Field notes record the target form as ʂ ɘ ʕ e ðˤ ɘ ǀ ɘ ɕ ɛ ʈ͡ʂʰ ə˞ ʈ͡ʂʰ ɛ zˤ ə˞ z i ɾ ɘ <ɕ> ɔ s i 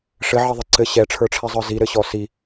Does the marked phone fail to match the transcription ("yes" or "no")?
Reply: no